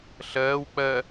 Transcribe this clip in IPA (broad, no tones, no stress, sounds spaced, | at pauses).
ɬ ɜː w k͡p ɜ